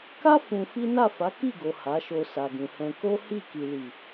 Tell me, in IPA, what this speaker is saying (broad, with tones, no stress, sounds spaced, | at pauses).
k a˦ f ũ˧ f i˦ n a˦˨ f a˨˦ k i˦˨ ɡ o˨ h a˨˦ ʃ o˧ s a˨ ɡ ũ˨ h ɛ̃˧ k o˦ h i˦˨ k i˨ l i˨